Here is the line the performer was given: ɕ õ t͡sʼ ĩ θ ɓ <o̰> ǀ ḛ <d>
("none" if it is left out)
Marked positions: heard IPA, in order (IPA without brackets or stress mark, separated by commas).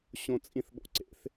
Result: o̰, θ